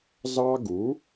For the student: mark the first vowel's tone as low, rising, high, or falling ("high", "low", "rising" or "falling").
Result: high